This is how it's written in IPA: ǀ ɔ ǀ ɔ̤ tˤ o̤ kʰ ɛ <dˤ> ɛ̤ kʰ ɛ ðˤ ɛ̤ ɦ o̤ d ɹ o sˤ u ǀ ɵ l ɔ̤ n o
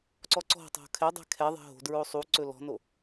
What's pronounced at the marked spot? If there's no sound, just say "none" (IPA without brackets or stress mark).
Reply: dˤ